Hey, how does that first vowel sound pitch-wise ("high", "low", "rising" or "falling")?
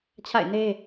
falling